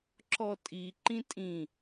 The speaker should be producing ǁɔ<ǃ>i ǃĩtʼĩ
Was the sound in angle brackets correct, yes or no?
no